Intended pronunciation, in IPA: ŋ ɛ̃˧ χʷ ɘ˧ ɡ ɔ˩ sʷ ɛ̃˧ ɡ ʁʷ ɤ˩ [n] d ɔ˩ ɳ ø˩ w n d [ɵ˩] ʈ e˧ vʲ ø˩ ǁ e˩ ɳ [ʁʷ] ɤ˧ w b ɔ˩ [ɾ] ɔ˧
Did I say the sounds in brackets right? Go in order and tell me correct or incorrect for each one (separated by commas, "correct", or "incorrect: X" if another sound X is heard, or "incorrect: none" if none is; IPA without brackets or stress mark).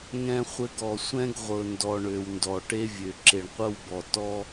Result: correct, incorrect: ɔ˩, incorrect: qʷ, incorrect: t